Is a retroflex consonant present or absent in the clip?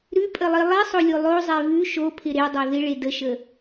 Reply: present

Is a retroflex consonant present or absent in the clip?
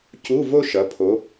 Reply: absent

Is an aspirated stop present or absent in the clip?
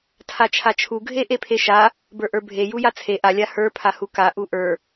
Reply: present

